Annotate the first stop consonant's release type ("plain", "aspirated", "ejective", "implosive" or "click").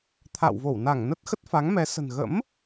aspirated